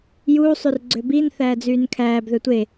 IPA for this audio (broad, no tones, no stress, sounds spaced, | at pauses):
j uː sˤ y r ɡ͡ǀ ø b i n θ æː d͡z yː n kʰ æː b ð ø tʷ e